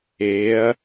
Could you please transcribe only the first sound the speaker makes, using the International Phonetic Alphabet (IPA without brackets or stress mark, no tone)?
eː